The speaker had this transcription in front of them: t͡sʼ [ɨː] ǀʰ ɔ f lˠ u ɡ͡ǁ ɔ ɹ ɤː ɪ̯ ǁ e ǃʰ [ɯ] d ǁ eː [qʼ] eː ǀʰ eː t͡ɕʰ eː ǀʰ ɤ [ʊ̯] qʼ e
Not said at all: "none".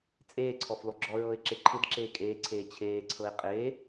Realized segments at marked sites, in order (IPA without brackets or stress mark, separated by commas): eː, ɯ, kʼ, ɪ̯